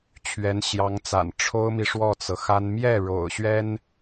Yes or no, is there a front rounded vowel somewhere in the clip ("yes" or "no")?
no